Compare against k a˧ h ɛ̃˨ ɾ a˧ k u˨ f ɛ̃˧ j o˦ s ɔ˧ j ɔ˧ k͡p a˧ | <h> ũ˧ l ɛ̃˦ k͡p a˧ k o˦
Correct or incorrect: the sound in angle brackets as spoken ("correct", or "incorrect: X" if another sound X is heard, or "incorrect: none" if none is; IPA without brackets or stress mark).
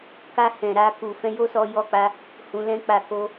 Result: correct